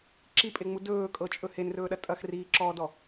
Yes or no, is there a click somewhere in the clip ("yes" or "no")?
yes